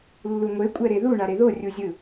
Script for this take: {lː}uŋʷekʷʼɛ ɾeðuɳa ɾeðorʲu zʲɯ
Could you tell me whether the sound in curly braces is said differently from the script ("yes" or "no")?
no